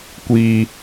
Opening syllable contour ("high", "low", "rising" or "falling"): high